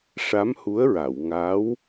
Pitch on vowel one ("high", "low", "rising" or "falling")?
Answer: rising